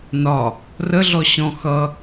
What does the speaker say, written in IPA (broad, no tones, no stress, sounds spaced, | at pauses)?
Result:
n ɒ | r ə ɮ ɔ ɕ ɔ̃ x ʌ